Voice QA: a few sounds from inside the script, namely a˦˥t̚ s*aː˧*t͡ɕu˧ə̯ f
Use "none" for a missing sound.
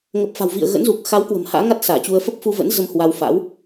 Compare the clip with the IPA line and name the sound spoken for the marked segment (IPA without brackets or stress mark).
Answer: aː˧˩